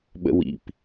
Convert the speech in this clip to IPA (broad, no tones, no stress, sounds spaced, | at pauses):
ɓ ə̰ w ḭ p